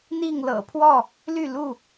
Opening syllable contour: falling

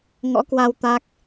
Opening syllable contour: rising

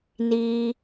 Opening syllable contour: high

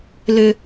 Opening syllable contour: high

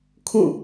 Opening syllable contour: falling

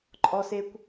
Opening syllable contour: high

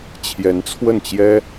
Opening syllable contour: rising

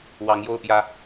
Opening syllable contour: rising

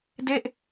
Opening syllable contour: falling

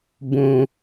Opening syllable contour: high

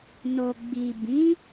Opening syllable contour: low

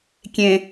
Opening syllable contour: low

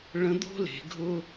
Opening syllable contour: rising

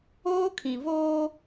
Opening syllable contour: high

